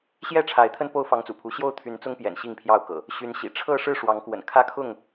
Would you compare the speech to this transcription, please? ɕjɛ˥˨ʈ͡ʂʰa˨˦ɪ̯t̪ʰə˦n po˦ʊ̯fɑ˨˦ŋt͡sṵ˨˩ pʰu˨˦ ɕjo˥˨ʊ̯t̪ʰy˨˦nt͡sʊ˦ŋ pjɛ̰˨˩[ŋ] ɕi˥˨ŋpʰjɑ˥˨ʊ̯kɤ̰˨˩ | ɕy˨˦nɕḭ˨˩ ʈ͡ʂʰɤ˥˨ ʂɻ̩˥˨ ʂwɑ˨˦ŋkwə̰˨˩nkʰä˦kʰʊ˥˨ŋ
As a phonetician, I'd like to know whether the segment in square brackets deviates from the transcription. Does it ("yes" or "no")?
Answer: yes